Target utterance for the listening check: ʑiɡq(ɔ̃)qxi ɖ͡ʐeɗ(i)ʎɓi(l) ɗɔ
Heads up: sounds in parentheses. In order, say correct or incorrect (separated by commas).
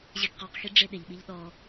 incorrect, incorrect, incorrect